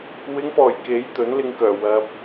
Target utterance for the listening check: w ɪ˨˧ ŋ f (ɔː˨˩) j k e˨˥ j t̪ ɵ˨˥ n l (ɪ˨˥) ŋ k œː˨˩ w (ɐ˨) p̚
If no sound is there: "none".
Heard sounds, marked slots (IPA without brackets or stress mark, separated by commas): ɔː˨˩, ɪ˧, ɐ˨